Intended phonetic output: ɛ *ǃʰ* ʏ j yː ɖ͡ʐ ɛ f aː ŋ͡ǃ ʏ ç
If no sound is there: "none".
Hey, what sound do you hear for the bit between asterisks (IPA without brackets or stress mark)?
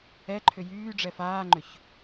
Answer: ǃʰ